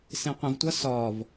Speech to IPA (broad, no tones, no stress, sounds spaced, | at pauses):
s ẽ qʷ ə̃ v tʷ ʌ s ɒ v